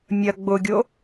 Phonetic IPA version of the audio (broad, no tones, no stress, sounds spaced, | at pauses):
mʲ ɐ ɡ͡b ʊ ɡʲ o